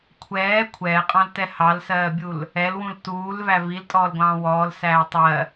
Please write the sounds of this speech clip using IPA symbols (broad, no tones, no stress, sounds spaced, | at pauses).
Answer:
kʷʰ ɛː kʷʰ ɛː qʼ ɑ̃ l t ɛ h ɑ l s ɜː bʲ u l | ɛ l w ũ l t uː l v æ v i l tʼ ɔː l ɡʷ ɑ̃ː w ɔː l s æː tˤ ɜ